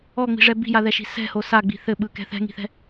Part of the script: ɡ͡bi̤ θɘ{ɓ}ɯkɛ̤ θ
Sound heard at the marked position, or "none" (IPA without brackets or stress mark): ɓ